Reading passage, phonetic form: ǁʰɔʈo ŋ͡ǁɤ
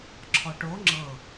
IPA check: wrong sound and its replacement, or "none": none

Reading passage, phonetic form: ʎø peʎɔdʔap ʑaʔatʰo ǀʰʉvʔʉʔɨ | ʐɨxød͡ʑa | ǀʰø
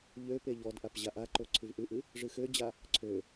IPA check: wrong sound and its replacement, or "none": tʰ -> ǃ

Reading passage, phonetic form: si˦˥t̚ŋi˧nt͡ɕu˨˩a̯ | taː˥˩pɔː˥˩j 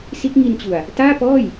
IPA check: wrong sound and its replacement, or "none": none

